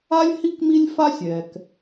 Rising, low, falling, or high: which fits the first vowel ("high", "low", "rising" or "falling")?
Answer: high